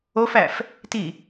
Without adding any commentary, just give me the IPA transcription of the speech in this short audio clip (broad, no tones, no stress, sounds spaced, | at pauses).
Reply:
o f æ f | t i